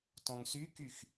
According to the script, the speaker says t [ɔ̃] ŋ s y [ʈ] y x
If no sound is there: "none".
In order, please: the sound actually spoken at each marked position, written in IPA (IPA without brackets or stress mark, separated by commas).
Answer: ɔ̃, k